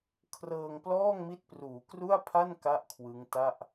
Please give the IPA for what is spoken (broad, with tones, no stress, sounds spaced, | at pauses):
kʰ r ɤː˧ ŋ p l ɔː˥˩ ŋ m i˦˥ t̚ p r uː˩˦ k r u˥˩ a̯ pʰ a˥˩ n k a˦˥ ʔ kʰ w ɯ˦˥ ŋ t a˥˩ ʔ